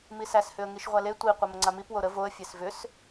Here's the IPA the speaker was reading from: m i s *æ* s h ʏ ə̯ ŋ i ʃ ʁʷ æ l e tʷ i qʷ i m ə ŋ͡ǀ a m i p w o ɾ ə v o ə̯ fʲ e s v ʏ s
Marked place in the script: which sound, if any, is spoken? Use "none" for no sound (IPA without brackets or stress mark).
æ